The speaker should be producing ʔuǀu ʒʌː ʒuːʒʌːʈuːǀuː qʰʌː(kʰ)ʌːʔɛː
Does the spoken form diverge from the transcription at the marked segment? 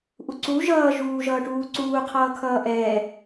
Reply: no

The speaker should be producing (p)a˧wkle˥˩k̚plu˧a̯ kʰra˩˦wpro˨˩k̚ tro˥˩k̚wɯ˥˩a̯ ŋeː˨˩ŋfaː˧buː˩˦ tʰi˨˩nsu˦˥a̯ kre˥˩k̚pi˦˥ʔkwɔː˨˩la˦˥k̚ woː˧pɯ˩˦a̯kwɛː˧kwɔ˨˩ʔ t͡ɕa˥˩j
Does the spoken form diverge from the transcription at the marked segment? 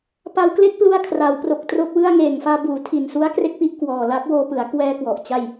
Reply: no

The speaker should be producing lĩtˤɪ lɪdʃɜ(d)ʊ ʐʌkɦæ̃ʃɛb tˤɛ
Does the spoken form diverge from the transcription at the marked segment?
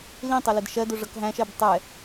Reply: no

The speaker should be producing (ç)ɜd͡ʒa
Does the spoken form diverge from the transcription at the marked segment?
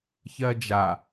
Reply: no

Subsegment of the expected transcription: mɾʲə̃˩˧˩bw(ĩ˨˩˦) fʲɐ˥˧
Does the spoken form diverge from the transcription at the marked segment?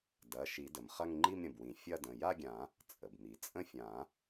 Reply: no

